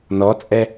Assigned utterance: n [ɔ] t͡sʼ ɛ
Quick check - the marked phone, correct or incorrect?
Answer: correct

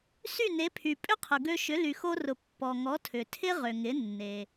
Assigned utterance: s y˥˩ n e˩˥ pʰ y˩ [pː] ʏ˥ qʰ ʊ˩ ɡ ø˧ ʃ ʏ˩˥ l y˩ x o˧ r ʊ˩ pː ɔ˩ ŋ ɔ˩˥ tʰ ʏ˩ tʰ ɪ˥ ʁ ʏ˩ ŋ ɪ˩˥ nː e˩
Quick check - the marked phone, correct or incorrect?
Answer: incorrect: pʼ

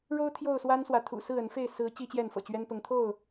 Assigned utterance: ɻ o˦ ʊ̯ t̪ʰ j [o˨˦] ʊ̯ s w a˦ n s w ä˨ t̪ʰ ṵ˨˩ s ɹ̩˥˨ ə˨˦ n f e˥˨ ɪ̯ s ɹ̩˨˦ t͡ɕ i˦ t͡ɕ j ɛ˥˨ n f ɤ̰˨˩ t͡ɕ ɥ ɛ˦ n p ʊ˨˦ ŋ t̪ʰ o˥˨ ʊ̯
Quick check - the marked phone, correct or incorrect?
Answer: incorrect: o˥˨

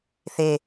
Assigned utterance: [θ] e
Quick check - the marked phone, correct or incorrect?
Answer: correct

